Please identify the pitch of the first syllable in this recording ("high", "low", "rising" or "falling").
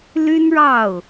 high